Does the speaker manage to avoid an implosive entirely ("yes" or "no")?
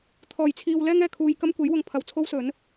yes